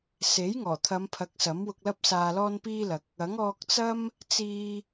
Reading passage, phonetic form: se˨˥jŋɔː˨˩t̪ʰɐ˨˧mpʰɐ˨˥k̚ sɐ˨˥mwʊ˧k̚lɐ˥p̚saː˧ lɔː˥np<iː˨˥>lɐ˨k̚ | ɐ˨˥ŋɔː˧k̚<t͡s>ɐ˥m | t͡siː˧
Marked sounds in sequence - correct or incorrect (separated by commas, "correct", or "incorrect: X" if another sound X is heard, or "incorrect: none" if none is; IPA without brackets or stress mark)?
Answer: incorrect: iː˥, correct